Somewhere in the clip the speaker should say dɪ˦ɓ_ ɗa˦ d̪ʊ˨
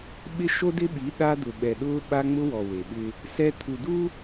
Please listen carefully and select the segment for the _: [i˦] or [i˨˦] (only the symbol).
i˨˦